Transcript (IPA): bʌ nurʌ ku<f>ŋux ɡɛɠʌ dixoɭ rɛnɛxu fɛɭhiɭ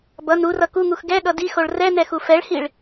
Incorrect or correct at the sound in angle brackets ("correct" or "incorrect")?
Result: incorrect